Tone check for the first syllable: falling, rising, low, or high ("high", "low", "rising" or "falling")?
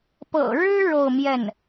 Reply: low